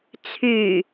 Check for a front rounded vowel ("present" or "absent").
present